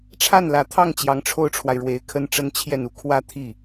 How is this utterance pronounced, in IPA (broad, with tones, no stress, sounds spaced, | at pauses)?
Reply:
ʈ͡ʂʰ a˥˩ n l ä˨˩ t̪ʰ ɑ˥˩ ŋ t͡ɕ j ɑ˧˥ ŋ ʈ͡ʂʰ o˥ ʊ̯ ʈ͡ʂʰ w a˨ ɪ̯ ɻ w e˧˥ ɪ̯ kʰ ə˥ n ʈ͡ʂ ə˥ n t͡ɕʰ j ɛ˥˧ n u˥˩ kʰ w ä˥ t̪ʰ i˥˩